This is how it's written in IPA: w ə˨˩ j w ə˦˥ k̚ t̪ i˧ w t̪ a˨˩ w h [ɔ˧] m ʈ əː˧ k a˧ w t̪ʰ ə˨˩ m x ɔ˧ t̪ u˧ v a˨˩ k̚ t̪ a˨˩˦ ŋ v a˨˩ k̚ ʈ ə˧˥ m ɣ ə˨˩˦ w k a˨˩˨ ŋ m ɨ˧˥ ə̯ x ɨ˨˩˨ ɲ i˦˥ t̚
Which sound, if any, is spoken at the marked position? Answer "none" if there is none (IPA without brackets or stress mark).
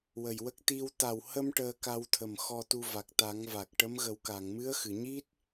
ə˧